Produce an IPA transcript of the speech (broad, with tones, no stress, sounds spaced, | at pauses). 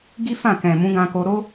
ɡ i˦ f ã˦˨ k ɛ̃˨ m ũ˨˦ ɡ ã˧ k o˧ ɾ o˦